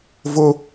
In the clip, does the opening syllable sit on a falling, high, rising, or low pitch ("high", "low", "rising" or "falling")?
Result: high